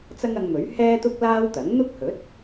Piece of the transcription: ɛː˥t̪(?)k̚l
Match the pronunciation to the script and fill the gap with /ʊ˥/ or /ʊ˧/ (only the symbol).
ʊ˥